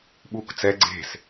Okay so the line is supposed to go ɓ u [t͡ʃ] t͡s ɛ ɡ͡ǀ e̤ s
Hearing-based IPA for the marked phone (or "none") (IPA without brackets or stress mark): k